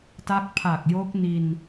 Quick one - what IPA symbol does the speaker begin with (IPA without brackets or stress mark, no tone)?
t